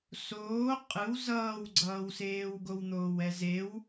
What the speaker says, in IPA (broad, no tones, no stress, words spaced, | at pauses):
soː qʼɯw zʌːwɡ͡ǀʌːwseːwɡow n̪oːwɛzew